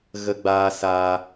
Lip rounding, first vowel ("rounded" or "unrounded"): unrounded